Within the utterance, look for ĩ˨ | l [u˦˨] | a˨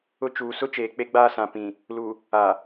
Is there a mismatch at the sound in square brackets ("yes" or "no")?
yes